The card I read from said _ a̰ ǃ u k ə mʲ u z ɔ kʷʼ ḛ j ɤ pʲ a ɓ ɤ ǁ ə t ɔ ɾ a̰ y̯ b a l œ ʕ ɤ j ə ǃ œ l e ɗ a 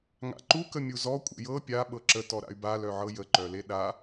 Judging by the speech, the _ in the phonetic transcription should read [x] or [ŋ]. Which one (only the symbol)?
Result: ŋ